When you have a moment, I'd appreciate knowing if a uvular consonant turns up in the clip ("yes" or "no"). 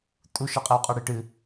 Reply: yes